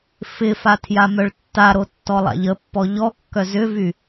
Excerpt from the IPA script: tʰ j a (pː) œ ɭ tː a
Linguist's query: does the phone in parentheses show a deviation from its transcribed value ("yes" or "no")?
yes